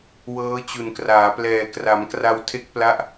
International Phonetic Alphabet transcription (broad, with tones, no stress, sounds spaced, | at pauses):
w ɤː˦˥ t͡ɕ u˨˩ n k r aː˩˦ p l ɛː˨˩ k r a˩˦ m k r a˧ w tʰ e˦˥ k̚ p l a˦˥ ʔ